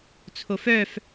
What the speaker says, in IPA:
t͡sʰ o f œ f

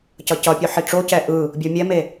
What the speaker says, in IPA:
c ʌ c ʌ pʲ o ħ i ʈ͡ʂ o c ɛ ʔ ɯ | bʲ o mʲ ɛ m e

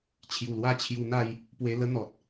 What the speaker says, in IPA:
t͡ɕʰ j u˨˩ l w a˦ t͡ɕʰ j u˧ n̪ a˥˧ j | p w e˧ l ə˦ n̪ ɔ˨ t̚

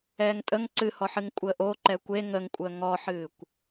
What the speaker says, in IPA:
ɛː ŋ tʼ ə ŋ ǀ ɨ h ɔ ħ ɨ ŋ kʷʼ əː ʔ o ǃ ɛ kʷ e ŋ ə ŋ kʷʼ əː ŋ ɔ ħ ɨː kʷ

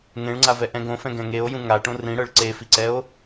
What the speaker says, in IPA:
ŋ ẽ ɭ ŋ͡ǀ a v ɛ ʔ ɛ̃ ɡ õ f ɛ̃ ɡ ɛ̃ ŋ e o̯ j ũ ŋ a ʈ õ r ĩ ɽ ɤ ɭ ǀ e f i ǀ ɛ o̯

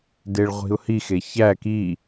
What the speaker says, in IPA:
d e ɭ ʁʷ i̤ ʊ̯ h i x e ç æ k i

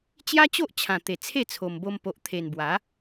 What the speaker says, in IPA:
t͡ɕ j a˦ t͡ɕ o˦ ʔ t͡ɕʰ ã˨˩ t̪ e˨˩ t͡sʰ e˥˧ t͡sʰ o˨˩ m b o˧ m p o˨ ʔ t̪ʰ e˨˩ n b w a˨˦

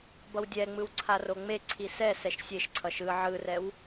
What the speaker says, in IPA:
b ʌ w dʲ ɛ ŋ͡m ɯ w ǀʰ a r o ŋ͡m e ǀʰ i s ɛ s ɛ ʃ sʲ e ʃ ǀʰ ʌ ʃ ɯ ʕ ɯ r ɛ w

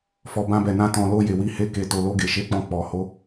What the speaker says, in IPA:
f ɔ˨ b ã˧ b ɛ˨ n ã˧ t ɔ̃˨ l o˧ j e˨ w i˧ h e˧ k e˨ t o˨ l o˧ ɡ e˨ ʃ e˨˦ k͡p ɔ̃˧ k͡p ɔ˨ h o˨˦

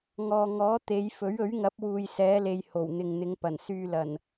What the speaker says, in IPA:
ŋ ɔː˨ ŋ ɔː˨˥ t̪ e˨˧ j f ɵ˨˥ ɥ ɵ˨˥ ɥ ŋ ɐ˨˥ p̚ w uː˨ j s ɛː˨˧ l e˨ j h o˨˩ w n̪ ɪ˨ ŋ n̪ ɪ˨˧ ŋ p ɐ˨˩ n s yː˧ l ɐ˨˩ n

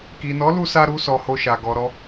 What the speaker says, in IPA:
k i˨ n ɔ˨˦ l u˧ s a˧ ɾ u˧ s ɔ˨ h o˧ ʃ a˨ ɡ ɔ˨ ɾ ɔ˧

